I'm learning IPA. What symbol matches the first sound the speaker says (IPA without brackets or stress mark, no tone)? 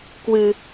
k